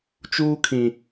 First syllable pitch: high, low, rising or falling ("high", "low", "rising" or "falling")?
high